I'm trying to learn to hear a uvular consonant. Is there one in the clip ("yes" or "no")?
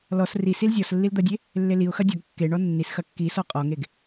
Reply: yes